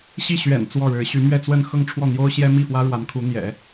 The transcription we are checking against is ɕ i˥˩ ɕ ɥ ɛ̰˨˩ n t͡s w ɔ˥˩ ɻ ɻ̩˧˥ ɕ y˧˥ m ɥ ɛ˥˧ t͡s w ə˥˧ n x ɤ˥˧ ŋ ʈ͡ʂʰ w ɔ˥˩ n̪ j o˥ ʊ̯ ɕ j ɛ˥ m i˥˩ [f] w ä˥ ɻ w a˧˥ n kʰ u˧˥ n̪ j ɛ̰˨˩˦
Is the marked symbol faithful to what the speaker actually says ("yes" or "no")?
yes